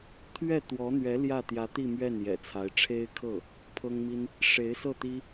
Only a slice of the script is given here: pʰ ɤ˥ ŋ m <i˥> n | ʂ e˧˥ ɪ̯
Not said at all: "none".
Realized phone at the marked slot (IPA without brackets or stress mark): i˥